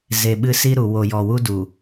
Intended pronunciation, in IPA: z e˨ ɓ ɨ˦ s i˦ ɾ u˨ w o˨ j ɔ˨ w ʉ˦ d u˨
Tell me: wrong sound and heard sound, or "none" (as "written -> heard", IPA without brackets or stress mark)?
ʉ˦ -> u˦